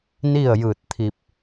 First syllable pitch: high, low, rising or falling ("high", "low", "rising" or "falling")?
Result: falling